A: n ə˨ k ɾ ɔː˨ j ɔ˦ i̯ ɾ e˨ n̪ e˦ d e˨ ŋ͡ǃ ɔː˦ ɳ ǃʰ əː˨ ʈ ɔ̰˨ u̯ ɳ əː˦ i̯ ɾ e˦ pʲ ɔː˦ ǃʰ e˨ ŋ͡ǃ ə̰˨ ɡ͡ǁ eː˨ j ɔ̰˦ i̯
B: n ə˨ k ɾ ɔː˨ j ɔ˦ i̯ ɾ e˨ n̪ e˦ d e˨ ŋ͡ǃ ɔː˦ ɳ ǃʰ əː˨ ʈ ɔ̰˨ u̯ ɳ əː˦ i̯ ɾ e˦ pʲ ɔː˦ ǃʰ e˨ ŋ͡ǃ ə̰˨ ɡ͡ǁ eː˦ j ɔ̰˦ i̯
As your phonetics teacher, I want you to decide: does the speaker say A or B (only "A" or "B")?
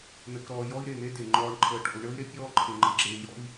A